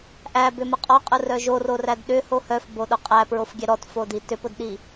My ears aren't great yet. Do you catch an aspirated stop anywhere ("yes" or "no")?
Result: no